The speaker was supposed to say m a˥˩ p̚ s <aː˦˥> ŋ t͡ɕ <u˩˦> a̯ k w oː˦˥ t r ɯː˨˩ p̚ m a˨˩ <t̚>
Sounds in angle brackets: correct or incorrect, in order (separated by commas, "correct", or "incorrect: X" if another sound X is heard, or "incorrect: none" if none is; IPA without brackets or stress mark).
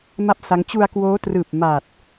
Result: incorrect: a˦˥, incorrect: u˧, correct